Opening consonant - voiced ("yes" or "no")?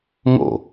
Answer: yes